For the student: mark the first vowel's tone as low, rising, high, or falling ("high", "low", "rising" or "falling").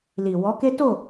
low